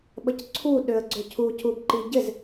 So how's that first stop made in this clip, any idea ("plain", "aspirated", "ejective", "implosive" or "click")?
implosive